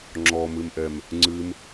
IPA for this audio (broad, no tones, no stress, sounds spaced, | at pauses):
ŋ͡ǁ ɔ m ɨ m ʔ ɛ m | ŋ͡ǀ ɨ m